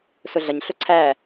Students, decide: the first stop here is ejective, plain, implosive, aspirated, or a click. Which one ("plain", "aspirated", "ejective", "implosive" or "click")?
click